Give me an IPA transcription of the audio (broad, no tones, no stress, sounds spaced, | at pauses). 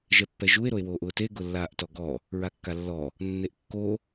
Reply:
ʒ ɛ pː ɛ ʒ u e̯ ɾ o e̯ w oː ʔ ʊː t e ɡ ʊ lː aː ʔ t ɔ ɡ ɔ | ɹ a kː a lː ɔ | nː e ʔ kː o